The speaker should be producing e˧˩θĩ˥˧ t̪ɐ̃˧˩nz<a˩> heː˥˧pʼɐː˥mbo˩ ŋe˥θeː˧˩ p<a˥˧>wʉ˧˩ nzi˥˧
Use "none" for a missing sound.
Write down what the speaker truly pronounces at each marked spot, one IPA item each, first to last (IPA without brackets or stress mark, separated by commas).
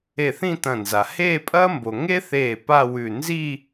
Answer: a˩, a˥˧